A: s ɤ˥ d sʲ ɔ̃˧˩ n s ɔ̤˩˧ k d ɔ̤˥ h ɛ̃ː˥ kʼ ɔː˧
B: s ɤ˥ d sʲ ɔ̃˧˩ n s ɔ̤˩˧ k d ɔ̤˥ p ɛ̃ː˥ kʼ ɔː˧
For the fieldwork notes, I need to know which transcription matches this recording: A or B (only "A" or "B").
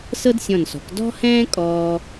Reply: A